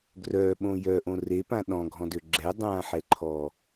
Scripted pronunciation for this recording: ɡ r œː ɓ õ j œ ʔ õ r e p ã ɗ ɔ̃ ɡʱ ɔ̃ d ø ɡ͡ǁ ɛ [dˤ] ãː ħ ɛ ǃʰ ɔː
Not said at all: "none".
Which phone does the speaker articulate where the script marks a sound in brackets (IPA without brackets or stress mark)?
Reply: dˤ